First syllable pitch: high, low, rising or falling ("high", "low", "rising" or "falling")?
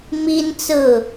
high